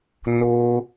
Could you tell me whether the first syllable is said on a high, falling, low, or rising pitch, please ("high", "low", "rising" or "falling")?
high